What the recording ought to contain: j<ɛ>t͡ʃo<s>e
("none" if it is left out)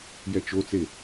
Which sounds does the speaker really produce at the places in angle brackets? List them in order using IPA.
ɛ, t͡s

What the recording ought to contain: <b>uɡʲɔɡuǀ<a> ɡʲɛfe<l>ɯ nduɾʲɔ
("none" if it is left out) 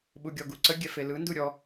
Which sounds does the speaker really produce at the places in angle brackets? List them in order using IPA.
ɓ, ə, l

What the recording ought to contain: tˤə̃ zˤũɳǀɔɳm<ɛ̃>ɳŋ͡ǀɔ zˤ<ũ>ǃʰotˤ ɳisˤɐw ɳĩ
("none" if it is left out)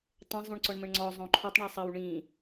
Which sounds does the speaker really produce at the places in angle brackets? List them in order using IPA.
ə̃, õ

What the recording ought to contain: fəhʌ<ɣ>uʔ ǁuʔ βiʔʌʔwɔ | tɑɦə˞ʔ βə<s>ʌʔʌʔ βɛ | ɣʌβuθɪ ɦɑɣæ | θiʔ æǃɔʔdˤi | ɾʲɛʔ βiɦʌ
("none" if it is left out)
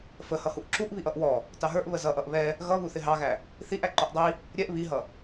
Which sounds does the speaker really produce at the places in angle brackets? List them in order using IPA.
h, z

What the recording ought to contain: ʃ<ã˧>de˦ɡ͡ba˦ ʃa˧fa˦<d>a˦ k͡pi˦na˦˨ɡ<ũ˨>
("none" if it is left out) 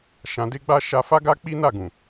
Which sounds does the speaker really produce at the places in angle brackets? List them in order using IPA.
ã˧, ɡ, ũ˨

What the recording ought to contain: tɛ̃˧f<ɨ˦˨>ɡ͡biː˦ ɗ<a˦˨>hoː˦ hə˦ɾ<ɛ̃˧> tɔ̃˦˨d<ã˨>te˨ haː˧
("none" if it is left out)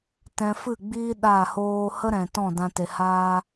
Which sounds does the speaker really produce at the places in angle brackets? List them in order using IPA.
ɨ˦˨, a˦˨, ɛ̃˨, ã˧

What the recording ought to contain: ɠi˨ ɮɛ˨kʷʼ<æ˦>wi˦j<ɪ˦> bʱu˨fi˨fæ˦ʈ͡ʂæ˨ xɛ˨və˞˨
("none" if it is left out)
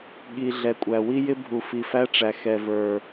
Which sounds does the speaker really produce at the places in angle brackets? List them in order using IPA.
æ˨, ɪ˦

